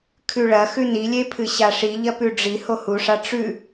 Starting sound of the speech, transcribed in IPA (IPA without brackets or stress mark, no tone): kʰ